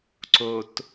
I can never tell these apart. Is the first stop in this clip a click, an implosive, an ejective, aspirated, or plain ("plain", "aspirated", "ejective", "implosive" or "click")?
click